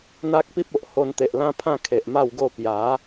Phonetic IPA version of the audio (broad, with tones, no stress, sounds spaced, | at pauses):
n̪ a˦ k̚ p i˦ p̚ o˨ ʔ h o˧ n t̪ e˨ ʔ l ã˦ pʰ ã˥˧ kʰ e˨ ʔ m a˥˧ w ɡ o˥˧ p j a˨˦